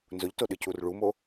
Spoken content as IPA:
n z ʊ ʎ t o ɗ ɨ c u r ɭ u m o

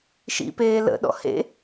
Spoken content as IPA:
ʃ ḭ p eː l ə̰ ɗ ɔ̰ h ḛ

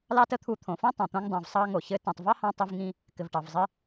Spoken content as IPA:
l ɑ˥ t ə˥ t̪ʰ u˧ t̪ʰ õ˩ f õ˥ tˤ õ˩ t̪ õ˧ ŋ dˤ õ˩ v sˤ ɑ˧ ŋ o˩ ç ɘ˧ t ĩ˩ tˤ v ɑ˥ h ɑ̃˧ tˤ ɘ˧ v ŋ ĩ˧ | k ɘ˩ v ʈ ɑ˩ v zˤ ɘ˧

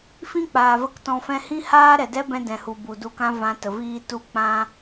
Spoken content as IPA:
f ĩ˦ k͡p aː˨ v ə˦ k t ɔ̃˧ f ɛ̃˦ h ĩ˦ h aː˦ ɾ ɛ˨ d ɛ˦ b ɛ̃˧ d ɛ̃˨ h u˨ b u˨ d u˧ k ã˦ v ã˧ t ə˨ v iː˧ t u˧ k͡p ã˦

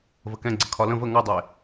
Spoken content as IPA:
v ə k ɛ̃ ɡ͡ǀ ə kʰ ɒ l ə̃ v ə ŋ ɔ dˤ e

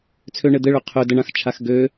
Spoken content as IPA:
t͡sʰ ø ɳ ɘ d̪ ɘ ɭ ø qʰ ø d ə ɳ ã x t͡ʃʰ a x ɡ ø

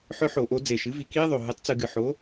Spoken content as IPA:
ħ œ˦˥ ħ o˧˩˧ ʔ o˩˥ d͡z e˨˩ ʃ ɨ˩˥ v i˧˩˧ k i˦˥ e̯ ðˤ o˨˩ ɦ ɨ˩˥ tˤ t͡s ɨ˧˩˧ ɡ ɨ˨˩ ħ o˩˥

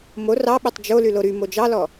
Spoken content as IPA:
m o r ɑ ɓ e tˤ d͡ʒ o l y l o ɾ y m o d͡ʒ ɑ l ɔ

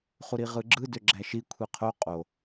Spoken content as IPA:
χ u ɾ i ʁ ɯ ɡ͡ǁ ɯ d ø ɡ͡ǁ æ ʃ i kʷʰ i qʰ o qʼ o

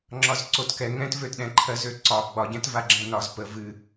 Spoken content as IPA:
ŋ͡ǁ ɒ z ǀ o t k ɛ ŋ ɛ̃ t v ø t ɗ ɛ̃ ǃʰ ɜ z ø ǀ ɒ ɡ͡b ɒ ɟ ɛ̃ t v a ɡ͡ǁ ɛ̃ n ɒ z p ə v ɨ

